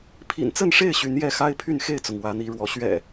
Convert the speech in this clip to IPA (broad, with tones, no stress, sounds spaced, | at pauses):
pʰ ḭ˨˩ n t͡s ə˥˨ n ʂ e˥˨ ɪ̯ ɕ y˨˦ n j ɛ˥˨ x a˦ ɪ̯ pʰ y˥˨ n x e˥˨ ɪ̯ t͡s ʊ˩ ŋ w ä˨˦ n̪ i˨˦ ɻ w ɔ˨˦ ɕ ɥ ɛ̰˨˩